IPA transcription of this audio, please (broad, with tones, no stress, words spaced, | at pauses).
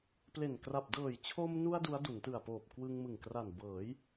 ple˨˩n kra˨˩p̚dɤː˨˩j t͡ɕʰo˧mnu˧a̯ du˦˥a̯du˩˦ntɯ˨˩a̯poː˨˩p̚ kwɯ˧ŋmɯ˨˩ŋkra˨˩n bɤː˩˦j